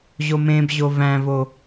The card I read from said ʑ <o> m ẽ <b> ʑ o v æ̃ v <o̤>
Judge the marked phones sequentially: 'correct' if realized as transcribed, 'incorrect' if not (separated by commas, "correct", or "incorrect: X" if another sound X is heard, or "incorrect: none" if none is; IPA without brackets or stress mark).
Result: correct, correct, incorrect: o